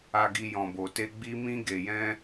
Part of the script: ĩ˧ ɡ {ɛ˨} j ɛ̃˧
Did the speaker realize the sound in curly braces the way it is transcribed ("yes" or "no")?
no